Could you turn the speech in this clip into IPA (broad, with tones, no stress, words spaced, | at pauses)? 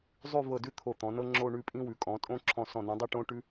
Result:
zˤʉ˥˧ vɤ˧˩dʉ˥˧ t̪ʰo˧˩t̪ɔ̃˩˧nɤ˥ ŋ͡ǁo˥˧ɳʉ˥˧pʼĩ˥ wʉ˩˧kʼɔ̃˩˧tʼõ˥˧ ǁʰɔ̃˧˩sɔ̃˧˩ nĩ˩˧dˤi˥˧ ʈõ˥ ʈʉ˥